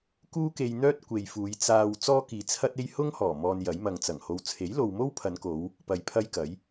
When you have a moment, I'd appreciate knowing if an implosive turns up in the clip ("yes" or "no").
no